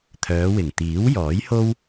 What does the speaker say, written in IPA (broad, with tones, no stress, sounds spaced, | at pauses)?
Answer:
t̪ʰ œː˨˧ w ɪ˨˩ ŋ t̪ iː˨˥ w j ɔː˨˥ j h o˥ w